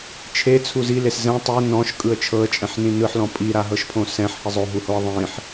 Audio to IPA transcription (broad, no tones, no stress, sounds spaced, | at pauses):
t͡ʃʰ e t͡sʰ u z i l e s z ɛ̃ tˤ e n ɔ̃ ʃ kʼ ɯ ə̯ t͡ʃʰ ɤ ə̯ t͡ʃʼ ɛ̃ ħ n ĩ n ɯ ħ l ɔ̃ pʼ i ɾ a ɦ ɤ ʃ pʰ õ s ɛ̃ ħ h i zˤ o ɦ u h o ə̯ ðˤ ĩ ħ